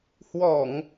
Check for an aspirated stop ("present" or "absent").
absent